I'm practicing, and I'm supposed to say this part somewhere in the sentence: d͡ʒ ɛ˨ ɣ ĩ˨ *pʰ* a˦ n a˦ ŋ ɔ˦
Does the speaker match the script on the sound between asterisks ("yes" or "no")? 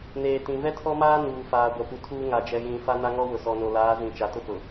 no